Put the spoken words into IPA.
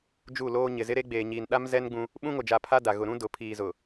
d͡ʒ u˦˨ l oː˦ ɲ ɪ˨ z ɪ˦ ɾ e˦ ɡ͡b eː˨ ɲ iː˨ n ɗ a˦ m z ɛ˦ n ɡ͡b ũ˦ | ɓ ũ˦ ŋ o˨ d͡ʒ a˨ pʰ a˦ d a˨ ɣ ʊ˨ ɾ ũ˦ d ʊ˨ pʰ iː˨ z ʊ˨

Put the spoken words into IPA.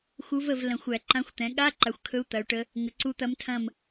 x u˧˥ v ə˦˨ v l ɐ̃˨˩˦ xʷ æ˨˩˦ ǃ ã˧˥ xʷ t̪ ɛ̃˩˥ ɠ a˧˥˧ ǃ a˩˥ xʷ kʰ ɵ˧˥ u̯ t̪ ɐ˩˥ u̯ ʈ ə˧˥ | ŋ ə˩˥ ǀ u˧˥ t̪ ɐ˧˥ m tʰ ɐ̃˦˨ m

